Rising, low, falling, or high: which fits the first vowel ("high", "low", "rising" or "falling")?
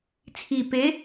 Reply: low